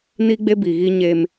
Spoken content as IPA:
n i˦ ɡ͡b e˦ b i˨ ɣ i˦ ɲ e˦ m

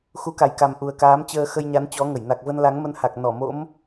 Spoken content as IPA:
x u˨˦ k a˨˩ j k a˨˩ m ʔ u˨˩ ə̯ k aː˨˦ m t͡ɕ əː˧ x ə˧ j ɲ a˨˦ n t͡ɕ ɔ˨˦ ŋ ə˧˩ j n a˨˩ k̚ v ə˧ n l a˨˦ ŋ m ə˧ n h a˨˩ k̚ n ɔ˧˩ m o̰˧˥ m

